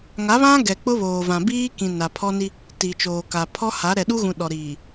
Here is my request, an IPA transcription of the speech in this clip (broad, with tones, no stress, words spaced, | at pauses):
ŋa˨˦βã˦ ɡɛ˨k͡pʊ˦ βoː˨vã˨ biː˦ kĩ˨ na˨pʰɔ˦ni˦ | ti˨t͡ʃoː˨ka˨ pʰɔ˦ha˨˦ ɾɛ˨ɗu˦ɣũ˨ ɗɔ˨ɾiː˨